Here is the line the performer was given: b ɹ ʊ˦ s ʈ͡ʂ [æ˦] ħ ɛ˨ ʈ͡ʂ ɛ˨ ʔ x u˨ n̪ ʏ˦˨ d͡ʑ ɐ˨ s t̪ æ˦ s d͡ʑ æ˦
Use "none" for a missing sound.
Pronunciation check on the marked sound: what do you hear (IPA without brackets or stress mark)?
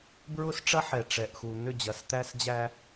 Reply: ɐ˦